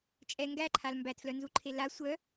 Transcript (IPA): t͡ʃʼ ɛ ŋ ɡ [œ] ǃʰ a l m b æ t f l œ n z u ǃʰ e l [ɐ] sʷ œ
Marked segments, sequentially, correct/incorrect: incorrect: æ, incorrect: a

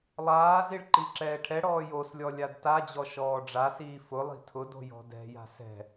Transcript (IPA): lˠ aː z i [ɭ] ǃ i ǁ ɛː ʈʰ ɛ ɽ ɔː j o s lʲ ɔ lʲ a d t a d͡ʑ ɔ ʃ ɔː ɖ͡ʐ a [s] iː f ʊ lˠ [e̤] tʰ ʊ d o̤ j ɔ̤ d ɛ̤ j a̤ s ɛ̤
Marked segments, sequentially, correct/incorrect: correct, correct, incorrect: i̤

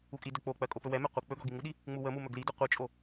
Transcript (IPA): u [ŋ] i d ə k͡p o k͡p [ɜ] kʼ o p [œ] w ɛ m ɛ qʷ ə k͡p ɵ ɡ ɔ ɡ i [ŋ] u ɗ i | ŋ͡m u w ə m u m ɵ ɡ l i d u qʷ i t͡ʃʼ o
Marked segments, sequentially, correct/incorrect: incorrect: kʼ, correct, incorrect: ɵ, correct

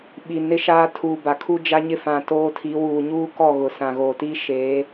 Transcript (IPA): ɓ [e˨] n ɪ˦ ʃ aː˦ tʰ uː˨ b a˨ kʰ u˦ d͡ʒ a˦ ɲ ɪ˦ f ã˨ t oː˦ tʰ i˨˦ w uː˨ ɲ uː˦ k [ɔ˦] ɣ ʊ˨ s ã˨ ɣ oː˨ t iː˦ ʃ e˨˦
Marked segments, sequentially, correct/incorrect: incorrect: i˨, incorrect: ɔ˦˨

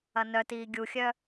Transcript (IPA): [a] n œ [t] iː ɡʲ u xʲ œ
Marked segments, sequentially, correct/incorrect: incorrect: ɐ, correct

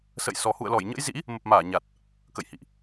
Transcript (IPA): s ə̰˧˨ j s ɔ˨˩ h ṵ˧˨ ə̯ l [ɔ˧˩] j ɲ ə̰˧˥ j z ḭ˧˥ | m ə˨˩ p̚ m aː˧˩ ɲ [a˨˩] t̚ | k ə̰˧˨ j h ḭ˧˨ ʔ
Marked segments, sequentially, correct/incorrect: correct, correct

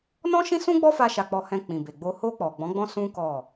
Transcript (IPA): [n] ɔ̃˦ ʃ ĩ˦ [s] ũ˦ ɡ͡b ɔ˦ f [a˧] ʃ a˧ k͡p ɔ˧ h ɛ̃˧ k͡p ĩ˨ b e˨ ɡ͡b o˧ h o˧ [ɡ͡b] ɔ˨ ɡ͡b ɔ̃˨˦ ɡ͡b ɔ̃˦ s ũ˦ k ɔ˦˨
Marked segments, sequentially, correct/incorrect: correct, correct, correct, incorrect: k͡p

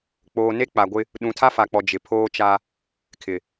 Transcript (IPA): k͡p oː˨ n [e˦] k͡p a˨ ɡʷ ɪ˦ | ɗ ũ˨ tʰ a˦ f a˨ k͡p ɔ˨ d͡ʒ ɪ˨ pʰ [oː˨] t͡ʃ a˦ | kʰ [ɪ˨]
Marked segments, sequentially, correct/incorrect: correct, incorrect: oː˦, correct

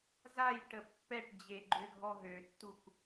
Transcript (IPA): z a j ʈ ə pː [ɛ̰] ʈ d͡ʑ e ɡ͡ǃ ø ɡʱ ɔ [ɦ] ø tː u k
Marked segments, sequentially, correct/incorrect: incorrect: ɛ, correct

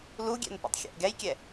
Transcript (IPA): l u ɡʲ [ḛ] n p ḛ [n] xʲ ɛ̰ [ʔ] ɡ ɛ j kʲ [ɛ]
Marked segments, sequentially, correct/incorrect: incorrect: ɛ̰, incorrect: tˤ, correct, correct

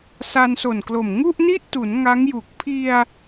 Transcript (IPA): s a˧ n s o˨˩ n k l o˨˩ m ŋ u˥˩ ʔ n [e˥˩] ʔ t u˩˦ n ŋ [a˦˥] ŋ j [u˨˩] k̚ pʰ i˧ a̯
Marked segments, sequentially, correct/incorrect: incorrect: i˥˩, correct, correct

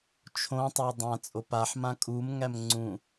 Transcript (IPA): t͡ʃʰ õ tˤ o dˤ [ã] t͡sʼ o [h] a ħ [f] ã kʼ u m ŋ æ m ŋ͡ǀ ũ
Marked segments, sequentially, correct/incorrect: correct, incorrect: p, incorrect: m

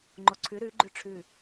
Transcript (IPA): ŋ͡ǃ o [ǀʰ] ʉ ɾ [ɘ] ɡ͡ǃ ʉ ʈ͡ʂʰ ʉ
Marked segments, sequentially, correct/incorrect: correct, incorrect: ʉ

